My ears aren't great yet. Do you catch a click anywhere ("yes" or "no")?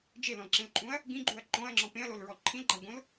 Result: yes